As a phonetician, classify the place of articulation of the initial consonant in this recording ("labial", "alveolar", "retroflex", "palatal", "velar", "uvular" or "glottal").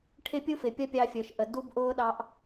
retroflex